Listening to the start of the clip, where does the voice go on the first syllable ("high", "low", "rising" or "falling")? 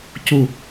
falling